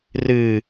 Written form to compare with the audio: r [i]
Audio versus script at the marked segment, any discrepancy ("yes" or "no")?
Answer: yes